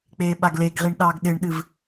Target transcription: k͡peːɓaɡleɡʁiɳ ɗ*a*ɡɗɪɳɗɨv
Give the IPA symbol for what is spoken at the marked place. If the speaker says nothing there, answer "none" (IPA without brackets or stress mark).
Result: ɑ